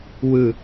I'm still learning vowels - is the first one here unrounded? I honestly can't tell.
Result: yes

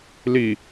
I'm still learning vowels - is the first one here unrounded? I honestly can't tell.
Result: yes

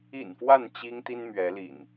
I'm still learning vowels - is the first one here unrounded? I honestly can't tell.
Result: yes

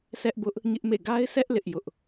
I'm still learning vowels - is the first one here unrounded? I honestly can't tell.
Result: yes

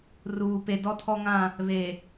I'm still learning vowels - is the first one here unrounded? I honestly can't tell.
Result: no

